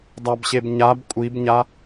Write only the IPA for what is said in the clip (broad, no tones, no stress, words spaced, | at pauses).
dˤabɕebɲab kʷʼibɲa